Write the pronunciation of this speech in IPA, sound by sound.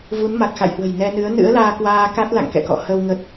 v u˨˦ n m a˨˩ k̚ x a̰˧˨ j h w ə̤˨˩ j n ɛ˧ n ɨ˨˦ ə̯ n ɨ̰˧˥ ə̯ l aː˧ k w aː˧ k a˦˥ t̚ l a̰˧˨ ŋ k ɛ̰˧˨ k ɔ̰˧˨ h ə˧ w ŋ ə˦˥ t̚

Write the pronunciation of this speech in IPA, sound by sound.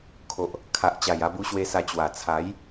kʰ o˨ ʔ | kʰ a˨ ʔ t͡ɕ a˨˩ j a˧ b u˧ ɕ w e˧ s a˧ t͡ɕ w a˨˩ t͡sʰ a˨˦ j

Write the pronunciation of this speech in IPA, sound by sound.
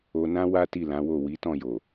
o˧ n ã˦ w a˦ t i˦˨ l ã˨˦ w o˦˨ w i˨˦ t ɔ̃˦˨ j o˨

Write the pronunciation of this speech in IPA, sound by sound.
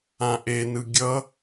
ã ʔ e n ɯ ɡʲ ʌ

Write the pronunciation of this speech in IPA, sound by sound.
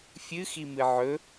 fʲ ɨ x i m ɨ ʕ ɵ

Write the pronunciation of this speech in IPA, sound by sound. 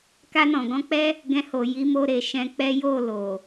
k a˧ n ɔ̃˨ ɡ ɔ̃˧ k͡p ɛ˦ | ɡ ɛ̃˧ h o˨ j i˨˦ m o˧ ɾ e˨ ʃ ɛ̃˧ k͡p ɛ˦ j o˦˨ l o˨

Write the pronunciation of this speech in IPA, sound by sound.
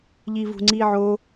ʎ i v ṳ ŋ͡ǀ i ʕ o

